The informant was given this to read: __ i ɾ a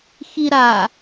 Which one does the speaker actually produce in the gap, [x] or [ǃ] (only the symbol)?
x